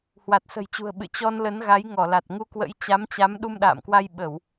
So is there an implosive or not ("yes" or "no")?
yes